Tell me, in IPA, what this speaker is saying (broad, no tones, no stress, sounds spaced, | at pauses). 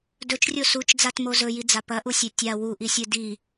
d ɵ t͡ʃ rʲ o s u t͡ʃ d͡z a t m o z ɵ j i d͡z a p ɐ ʔ u sʲ e tʲ a w u ʔ i sʲ ɨ d i